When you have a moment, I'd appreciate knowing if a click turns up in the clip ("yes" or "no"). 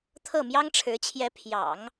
no